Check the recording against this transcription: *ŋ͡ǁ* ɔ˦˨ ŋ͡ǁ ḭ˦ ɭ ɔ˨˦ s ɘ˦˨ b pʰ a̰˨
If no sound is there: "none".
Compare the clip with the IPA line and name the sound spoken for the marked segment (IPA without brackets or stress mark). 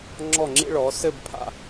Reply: ŋ͡ǁ